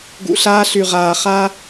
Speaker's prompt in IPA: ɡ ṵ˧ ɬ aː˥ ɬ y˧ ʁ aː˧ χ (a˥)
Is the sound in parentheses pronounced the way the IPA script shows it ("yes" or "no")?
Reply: yes